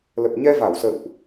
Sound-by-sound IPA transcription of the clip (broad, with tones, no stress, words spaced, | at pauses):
lə˨˩p̚ɲɛ˧ va˧˩wsə̰ː˧˨wʔ